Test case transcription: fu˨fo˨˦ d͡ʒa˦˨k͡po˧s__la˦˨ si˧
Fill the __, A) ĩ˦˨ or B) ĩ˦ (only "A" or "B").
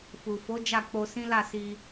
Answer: B